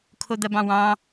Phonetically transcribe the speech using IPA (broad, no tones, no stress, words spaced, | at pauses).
kʰod̪ɐbɑ̃wɑ̃